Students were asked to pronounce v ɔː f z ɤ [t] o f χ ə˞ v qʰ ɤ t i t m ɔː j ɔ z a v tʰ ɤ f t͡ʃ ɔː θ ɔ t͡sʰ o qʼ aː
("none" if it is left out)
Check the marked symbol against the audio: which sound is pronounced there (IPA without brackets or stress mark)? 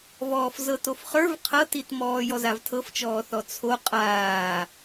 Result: t